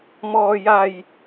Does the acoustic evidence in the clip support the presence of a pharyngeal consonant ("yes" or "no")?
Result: no